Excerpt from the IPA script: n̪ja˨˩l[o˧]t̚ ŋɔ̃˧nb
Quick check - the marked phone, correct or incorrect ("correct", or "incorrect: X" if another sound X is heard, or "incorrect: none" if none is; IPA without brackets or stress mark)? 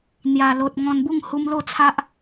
incorrect: o˨